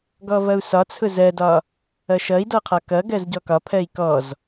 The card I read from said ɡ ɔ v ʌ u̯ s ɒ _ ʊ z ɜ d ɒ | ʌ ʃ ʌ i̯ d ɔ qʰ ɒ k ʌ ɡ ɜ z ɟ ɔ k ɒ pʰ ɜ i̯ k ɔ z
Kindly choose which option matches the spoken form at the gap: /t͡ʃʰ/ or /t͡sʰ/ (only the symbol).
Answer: t͡sʰ